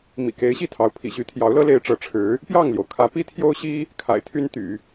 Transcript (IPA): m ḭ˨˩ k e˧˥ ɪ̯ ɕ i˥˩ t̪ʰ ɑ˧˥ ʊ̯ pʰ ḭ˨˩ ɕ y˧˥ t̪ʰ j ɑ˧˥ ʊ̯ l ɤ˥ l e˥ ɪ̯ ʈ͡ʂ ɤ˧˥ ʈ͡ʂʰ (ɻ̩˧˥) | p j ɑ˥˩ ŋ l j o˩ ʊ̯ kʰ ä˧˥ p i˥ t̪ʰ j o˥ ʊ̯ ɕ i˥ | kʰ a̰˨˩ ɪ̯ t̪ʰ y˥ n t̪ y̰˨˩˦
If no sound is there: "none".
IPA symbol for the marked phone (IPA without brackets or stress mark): ɻ̩˧˥